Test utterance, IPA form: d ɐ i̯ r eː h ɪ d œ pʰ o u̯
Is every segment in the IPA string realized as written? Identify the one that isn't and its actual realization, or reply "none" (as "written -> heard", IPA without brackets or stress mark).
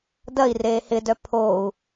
none